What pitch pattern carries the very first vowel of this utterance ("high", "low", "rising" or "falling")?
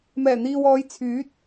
low